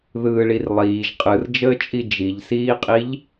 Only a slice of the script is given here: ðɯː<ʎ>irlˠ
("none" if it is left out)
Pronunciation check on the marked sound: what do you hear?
ɭ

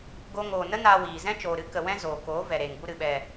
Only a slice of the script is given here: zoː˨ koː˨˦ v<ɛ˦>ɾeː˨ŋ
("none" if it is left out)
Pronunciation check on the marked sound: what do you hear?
ɛ˨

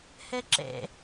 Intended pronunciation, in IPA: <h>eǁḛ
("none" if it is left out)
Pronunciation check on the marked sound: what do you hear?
h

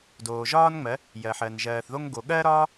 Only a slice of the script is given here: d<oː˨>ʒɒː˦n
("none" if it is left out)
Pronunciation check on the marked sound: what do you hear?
oː˨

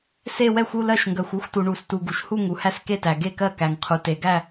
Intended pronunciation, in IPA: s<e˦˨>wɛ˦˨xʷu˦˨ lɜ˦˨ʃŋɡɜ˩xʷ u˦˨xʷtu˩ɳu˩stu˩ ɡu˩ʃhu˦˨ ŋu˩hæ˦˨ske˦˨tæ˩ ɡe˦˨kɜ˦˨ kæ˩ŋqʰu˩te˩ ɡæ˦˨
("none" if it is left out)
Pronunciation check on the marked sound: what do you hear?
e˦˨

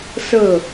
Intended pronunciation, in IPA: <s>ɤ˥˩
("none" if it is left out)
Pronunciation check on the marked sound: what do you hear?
s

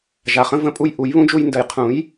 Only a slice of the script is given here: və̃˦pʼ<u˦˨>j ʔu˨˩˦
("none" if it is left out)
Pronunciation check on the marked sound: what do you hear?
u˦˨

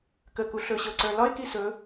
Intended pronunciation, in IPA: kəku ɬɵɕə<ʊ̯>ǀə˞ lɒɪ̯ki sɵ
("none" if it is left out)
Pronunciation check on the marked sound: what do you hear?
ʊ̯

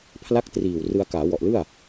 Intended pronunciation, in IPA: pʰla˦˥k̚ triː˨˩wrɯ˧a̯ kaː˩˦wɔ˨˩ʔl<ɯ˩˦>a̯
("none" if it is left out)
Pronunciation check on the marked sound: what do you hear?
ɯ˥˩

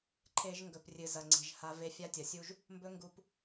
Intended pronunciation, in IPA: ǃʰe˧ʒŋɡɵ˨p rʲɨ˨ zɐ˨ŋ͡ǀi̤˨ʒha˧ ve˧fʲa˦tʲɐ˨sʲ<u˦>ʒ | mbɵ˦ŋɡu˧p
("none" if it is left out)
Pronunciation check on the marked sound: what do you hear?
u˦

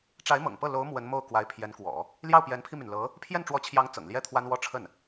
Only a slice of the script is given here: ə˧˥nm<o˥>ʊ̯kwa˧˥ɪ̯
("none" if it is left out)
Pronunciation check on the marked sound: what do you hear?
o˥˩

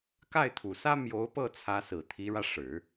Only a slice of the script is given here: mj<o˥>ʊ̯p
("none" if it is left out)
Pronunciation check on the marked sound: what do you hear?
o˧˥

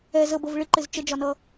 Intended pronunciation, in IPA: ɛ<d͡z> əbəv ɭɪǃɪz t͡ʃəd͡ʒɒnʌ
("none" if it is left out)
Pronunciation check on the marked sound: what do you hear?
z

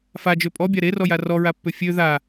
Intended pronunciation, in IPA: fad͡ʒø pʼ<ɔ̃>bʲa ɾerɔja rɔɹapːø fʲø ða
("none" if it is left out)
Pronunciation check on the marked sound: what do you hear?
ɔ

